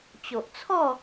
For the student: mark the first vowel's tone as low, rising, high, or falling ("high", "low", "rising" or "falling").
low